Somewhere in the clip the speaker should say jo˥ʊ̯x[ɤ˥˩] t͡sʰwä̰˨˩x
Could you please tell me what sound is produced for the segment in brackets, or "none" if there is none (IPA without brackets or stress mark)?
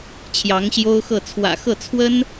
ɤ˥˩